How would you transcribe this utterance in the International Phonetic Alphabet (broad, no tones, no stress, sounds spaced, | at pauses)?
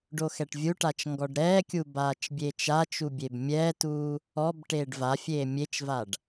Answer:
ɖ o x ɛ ʈ vʲ u ʈ a t͡ʃ ŋ ɡ ɔ ɖ ɾ ɛː kʲ u b aː t͡ʃ bʲ e t͡ʃ a t͡ʃ u bʲ e b mʲ ɛː t uː | ɔ b ʈ eː ɖ v a fʲ eː mʲ e t͡ʃ v a ɖ